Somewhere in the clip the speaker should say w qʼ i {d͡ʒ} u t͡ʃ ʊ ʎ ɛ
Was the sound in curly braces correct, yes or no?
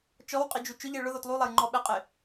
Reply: yes